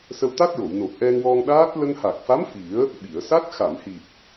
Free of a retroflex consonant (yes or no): yes